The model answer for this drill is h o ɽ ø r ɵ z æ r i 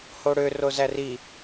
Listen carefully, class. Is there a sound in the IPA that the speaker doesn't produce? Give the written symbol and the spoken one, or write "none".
ɵ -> o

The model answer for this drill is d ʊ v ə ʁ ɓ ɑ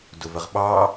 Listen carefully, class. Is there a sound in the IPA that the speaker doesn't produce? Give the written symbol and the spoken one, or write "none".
none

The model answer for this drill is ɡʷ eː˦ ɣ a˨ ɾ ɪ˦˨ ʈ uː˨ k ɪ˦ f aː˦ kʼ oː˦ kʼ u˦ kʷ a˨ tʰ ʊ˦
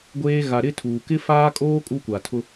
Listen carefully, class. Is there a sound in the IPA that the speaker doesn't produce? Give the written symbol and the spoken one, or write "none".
ʈ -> tʰ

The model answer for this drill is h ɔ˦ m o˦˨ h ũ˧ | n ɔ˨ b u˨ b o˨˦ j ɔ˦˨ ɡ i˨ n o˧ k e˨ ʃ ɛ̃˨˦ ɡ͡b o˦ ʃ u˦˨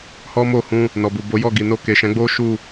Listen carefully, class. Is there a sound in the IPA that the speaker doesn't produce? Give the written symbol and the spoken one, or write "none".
none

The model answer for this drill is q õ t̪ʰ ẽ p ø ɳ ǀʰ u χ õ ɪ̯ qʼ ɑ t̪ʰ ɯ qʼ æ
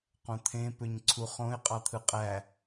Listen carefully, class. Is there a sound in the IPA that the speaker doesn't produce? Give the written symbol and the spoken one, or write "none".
ɳ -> ɲ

